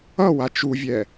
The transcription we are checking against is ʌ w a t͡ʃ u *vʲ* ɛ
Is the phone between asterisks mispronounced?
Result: no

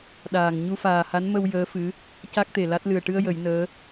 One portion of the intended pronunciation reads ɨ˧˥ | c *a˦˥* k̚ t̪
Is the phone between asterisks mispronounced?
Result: no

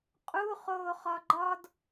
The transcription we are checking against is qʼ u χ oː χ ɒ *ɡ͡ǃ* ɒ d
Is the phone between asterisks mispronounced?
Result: no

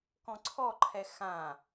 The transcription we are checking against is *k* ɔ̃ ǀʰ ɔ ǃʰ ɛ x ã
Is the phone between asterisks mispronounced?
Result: no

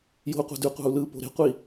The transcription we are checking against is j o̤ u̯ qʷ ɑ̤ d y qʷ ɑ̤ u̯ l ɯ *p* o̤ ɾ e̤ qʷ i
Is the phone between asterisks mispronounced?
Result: no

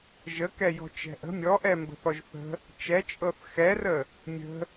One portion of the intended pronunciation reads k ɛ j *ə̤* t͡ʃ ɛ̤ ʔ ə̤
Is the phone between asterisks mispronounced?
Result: yes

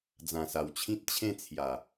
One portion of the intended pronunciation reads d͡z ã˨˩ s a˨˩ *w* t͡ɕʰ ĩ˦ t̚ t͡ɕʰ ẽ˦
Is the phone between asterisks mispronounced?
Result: no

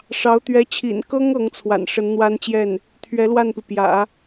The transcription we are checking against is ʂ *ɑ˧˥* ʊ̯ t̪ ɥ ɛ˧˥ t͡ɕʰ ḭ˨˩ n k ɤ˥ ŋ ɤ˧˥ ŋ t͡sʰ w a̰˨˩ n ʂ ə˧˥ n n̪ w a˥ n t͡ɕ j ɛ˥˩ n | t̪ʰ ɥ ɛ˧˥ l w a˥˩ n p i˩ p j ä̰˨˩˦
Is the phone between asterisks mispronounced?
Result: no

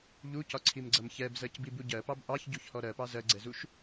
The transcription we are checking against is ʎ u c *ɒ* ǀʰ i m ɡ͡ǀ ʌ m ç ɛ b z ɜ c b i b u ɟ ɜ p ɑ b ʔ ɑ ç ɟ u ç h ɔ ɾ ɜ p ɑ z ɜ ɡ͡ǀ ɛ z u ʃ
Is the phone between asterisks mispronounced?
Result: no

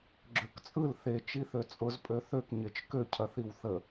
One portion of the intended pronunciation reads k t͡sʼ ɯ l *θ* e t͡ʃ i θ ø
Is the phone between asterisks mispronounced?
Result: no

